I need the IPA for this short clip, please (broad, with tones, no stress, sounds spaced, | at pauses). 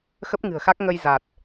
x ə˦˥ p̚ ŋ ɨ̤˨˩ ə̯ x a˦˥ k̚ ŋ ə˧ j z a˨˩ t̚